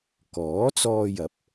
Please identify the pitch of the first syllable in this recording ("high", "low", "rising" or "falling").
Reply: rising